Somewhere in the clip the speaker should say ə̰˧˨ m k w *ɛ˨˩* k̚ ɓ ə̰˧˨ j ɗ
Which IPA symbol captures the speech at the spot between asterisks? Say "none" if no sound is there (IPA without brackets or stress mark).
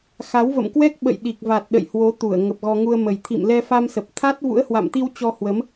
ɛ˦˥